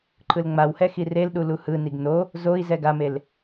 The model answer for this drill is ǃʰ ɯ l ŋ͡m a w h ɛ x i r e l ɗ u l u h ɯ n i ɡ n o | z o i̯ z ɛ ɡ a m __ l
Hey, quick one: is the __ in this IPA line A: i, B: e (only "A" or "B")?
B